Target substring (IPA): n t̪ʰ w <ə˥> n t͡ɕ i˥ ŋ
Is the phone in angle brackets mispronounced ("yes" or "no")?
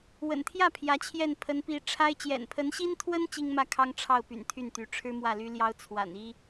no